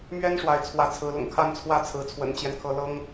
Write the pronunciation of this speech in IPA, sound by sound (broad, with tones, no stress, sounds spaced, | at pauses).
m ɥ ɛ˦ n ʂ w a˨˦ ɪ̯ t͡sʰ w ä˨˦ t͡sʰ ɹ̩˨˦ l ʊ̰˨˩ ŋ kʰ a˥˨ n t͡sʰ w ä˥˨ t͡sʰ ɹ̩˨˦ t͡sʰ w ə̰˨˩ n t͡ɕ j ɛ˦ n kʰ ɤ˨˦ l ɤ˦ ŋ